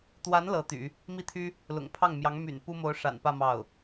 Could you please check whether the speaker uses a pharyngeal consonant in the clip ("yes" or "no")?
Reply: no